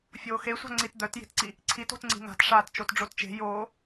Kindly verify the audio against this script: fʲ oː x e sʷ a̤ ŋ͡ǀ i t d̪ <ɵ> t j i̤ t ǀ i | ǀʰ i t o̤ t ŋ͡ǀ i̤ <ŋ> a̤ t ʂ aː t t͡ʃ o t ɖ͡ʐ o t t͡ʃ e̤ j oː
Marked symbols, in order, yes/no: no, yes

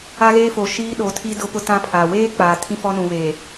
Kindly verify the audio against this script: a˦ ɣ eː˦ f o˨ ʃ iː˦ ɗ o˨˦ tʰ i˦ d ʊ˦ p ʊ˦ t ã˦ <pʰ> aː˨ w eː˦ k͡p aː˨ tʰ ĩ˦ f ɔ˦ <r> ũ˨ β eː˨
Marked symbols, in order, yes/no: yes, no

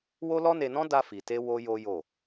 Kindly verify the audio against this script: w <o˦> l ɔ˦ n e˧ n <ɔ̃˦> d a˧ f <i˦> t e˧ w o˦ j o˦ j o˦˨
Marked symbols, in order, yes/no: yes, yes, no

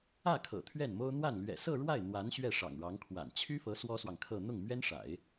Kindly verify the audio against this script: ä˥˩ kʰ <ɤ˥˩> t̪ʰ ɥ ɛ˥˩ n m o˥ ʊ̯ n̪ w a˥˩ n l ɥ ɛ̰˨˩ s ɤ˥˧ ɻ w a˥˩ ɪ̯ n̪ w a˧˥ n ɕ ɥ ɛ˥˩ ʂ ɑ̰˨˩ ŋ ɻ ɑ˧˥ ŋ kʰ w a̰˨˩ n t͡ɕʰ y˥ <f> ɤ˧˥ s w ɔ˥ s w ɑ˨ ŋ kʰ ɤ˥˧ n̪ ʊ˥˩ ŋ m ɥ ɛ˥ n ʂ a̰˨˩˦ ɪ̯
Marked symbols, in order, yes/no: no, yes

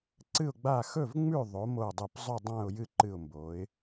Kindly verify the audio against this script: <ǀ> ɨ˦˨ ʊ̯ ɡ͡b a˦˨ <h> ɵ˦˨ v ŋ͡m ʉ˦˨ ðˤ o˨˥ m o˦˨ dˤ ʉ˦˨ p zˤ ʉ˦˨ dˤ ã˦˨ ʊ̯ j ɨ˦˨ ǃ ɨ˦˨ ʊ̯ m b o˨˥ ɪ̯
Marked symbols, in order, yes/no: yes, no

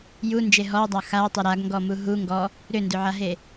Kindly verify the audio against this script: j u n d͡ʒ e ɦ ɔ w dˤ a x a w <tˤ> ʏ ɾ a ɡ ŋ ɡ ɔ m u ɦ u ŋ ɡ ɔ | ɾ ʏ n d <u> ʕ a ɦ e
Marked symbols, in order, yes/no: yes, no

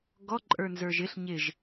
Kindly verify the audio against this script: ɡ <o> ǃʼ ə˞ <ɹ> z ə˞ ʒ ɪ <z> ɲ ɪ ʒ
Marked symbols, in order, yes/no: no, no, no

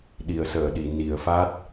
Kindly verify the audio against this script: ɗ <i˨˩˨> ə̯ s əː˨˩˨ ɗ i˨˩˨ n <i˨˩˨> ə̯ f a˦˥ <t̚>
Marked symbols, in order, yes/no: yes, yes, yes

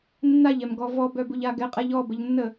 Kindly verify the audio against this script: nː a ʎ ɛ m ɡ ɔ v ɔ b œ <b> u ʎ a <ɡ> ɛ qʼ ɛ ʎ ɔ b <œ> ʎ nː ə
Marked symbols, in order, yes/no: yes, yes, no

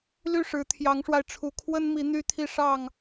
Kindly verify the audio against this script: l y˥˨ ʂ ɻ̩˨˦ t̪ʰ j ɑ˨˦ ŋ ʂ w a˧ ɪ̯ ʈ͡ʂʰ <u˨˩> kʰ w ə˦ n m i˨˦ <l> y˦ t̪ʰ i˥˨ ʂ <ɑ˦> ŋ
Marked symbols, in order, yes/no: yes, no, no

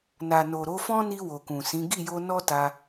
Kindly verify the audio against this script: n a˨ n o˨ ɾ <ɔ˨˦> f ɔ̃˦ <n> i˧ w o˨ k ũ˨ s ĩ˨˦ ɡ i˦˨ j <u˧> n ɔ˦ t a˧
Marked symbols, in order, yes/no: no, yes, no

